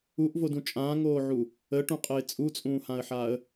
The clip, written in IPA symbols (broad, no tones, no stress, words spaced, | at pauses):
uʔvodũ t͡ʃʼãːŋoːʕu | əʈũqʼəɪ̯ t͡sʼut͡sʼũːhãə̯ħaːə̯